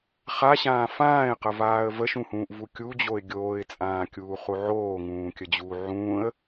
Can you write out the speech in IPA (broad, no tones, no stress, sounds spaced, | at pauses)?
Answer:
χ a ɕ ãː f ãː ɪ̯ q ə v aː ə̯ v ə ʃ ũ h ũː ʔ v u kʲ u d͡ʑ o ɪ̯ ɡʲ oː ɪ̯ t͡sʼ ãː kʲ uː χ u ʕ oː ŋ ũː kʲ ə d͡ʑ uː ʕ ũː ə̯